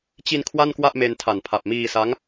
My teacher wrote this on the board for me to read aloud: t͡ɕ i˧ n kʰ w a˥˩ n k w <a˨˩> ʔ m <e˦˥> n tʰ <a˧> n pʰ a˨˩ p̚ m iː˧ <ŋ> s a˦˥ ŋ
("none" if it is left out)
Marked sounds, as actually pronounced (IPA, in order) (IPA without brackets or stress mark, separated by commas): a˥˩, e˧, a˨˩, none